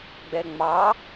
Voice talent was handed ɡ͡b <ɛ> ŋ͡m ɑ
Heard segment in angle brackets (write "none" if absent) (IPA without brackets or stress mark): ɛ